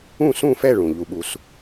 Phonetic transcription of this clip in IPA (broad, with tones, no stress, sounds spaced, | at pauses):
ũ˥˨ s ũ˥˨ f ɛ˥˨ ɭ ũ˧˩ ʎ u˥˨ ɓ u˦ s